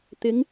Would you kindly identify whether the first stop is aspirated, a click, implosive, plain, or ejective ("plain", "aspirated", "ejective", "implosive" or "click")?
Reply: plain